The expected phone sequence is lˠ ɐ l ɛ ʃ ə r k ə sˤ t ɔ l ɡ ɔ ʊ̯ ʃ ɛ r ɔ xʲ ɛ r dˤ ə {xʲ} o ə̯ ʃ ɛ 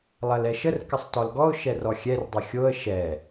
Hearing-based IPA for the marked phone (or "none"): xʲ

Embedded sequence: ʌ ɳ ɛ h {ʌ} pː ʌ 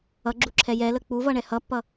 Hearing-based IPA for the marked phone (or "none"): ʌ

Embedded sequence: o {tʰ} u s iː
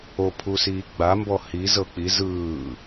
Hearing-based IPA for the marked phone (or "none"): pʰ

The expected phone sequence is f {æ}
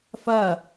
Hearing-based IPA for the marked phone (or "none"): ɐ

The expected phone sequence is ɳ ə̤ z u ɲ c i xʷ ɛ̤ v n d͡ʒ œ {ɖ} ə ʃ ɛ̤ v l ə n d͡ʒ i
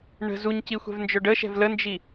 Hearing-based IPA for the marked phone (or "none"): ɖ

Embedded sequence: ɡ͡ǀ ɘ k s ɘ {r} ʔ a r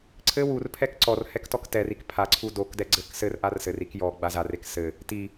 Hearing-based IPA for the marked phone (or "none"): r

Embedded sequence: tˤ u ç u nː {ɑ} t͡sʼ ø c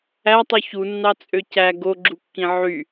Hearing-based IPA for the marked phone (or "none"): ɑ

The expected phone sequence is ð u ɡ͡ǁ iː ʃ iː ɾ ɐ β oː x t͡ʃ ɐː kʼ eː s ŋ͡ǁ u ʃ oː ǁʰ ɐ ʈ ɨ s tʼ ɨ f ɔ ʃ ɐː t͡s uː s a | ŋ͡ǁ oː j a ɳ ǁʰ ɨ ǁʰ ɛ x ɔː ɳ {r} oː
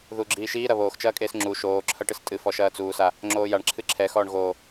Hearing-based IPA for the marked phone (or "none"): ɣ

